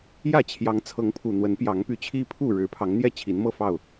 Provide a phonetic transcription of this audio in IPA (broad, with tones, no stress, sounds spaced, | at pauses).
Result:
j ä˥˨ t͡ɕʰ j ɑ˨˦ ŋ t͡sʰ ɤ˨˦ ŋ pʰ u˨˩ n̪ w ə˨˦ n p j ɑ˨˦ ŋ p y˨˦ t͡ɕʰ i˦ pʰ u˥˨ ɻ ɻ̩˨˦ pʰ ɑ˨˦ ŋ n̪ j ɛ˥˨ t͡ɕʰ i˨˦ n m ɤ˥˨ f ɑ˥˨ ʊ̯